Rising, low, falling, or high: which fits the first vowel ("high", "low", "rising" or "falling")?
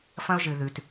high